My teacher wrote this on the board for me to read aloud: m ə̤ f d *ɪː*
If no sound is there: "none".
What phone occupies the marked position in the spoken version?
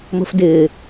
ɪː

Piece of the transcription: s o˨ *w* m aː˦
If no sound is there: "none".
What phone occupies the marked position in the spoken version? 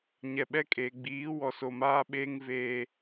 none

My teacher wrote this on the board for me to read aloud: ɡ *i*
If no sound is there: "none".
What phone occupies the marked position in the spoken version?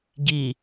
i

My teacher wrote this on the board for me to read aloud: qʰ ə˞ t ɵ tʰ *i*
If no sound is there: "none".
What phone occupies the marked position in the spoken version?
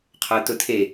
e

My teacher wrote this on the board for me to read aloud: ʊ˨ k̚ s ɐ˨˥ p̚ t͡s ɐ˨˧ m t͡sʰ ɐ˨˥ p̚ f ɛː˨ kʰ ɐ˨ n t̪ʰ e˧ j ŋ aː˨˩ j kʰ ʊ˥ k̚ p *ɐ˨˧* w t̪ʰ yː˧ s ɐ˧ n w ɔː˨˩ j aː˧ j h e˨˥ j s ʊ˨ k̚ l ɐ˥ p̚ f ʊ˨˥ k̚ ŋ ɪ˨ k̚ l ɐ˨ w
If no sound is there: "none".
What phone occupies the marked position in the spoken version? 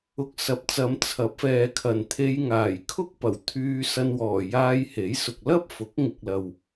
ɐ˨˩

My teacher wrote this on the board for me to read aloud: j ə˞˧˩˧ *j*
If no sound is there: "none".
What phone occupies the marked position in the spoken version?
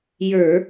none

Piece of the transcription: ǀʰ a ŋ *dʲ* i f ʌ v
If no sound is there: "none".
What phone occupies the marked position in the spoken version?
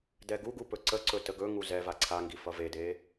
ɡ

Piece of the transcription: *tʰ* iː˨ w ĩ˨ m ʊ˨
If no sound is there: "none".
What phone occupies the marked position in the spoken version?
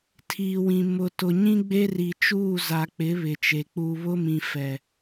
tʰ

